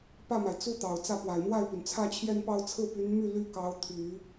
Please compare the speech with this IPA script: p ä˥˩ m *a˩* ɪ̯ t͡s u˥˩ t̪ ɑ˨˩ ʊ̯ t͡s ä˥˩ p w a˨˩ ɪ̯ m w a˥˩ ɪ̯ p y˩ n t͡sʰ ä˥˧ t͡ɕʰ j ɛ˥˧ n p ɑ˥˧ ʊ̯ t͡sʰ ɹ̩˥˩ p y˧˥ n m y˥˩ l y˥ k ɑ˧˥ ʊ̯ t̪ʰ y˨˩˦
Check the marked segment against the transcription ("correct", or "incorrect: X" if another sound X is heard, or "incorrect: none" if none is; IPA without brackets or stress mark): correct